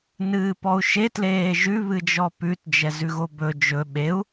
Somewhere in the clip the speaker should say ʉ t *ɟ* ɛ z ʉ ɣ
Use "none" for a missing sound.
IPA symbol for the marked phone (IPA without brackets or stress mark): d͡ʒ